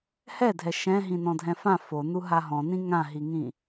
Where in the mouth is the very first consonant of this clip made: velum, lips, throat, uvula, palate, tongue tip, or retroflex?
throat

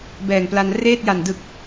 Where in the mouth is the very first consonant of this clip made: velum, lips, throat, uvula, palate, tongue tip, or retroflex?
lips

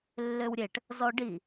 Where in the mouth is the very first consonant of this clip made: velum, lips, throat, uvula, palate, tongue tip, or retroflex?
tongue tip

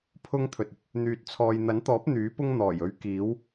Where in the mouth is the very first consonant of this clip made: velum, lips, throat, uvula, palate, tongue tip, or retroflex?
lips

